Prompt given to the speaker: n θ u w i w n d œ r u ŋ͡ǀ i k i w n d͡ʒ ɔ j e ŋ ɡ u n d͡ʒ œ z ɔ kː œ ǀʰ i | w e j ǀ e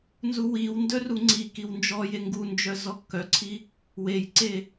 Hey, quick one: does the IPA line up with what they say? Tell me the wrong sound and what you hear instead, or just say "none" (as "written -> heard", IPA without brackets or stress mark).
θ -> z